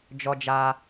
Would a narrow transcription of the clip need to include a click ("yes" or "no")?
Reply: no